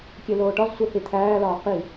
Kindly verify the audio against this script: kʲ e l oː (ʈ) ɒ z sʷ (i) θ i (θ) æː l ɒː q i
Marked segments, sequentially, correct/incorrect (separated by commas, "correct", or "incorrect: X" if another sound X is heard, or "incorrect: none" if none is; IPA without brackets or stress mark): correct, incorrect: e, incorrect: t̪ʰ